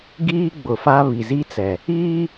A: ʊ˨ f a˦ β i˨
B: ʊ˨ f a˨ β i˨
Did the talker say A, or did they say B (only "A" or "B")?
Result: A